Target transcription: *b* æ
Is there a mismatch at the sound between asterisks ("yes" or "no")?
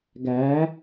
yes